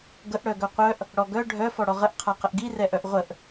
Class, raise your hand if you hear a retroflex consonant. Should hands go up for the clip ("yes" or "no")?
yes